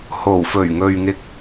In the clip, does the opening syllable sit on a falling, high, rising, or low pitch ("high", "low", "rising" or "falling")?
low